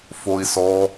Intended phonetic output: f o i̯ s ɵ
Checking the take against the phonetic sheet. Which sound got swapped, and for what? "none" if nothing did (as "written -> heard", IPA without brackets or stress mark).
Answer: ɵ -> ɔ